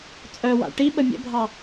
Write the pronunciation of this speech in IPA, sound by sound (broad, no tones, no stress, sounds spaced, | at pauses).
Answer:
t͡sʼ œ w a̰ ʈ i ɓ ə mʲ ə̰ bʱ ɑ